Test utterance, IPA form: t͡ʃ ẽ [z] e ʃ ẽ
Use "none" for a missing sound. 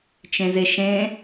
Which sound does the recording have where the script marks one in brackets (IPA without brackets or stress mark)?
z